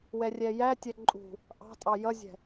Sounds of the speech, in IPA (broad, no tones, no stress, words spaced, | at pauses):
wɛrʲɛjætʲɛ ǃʼṳ | ʔɑ̤tʼɑ jʌzʲɛ̤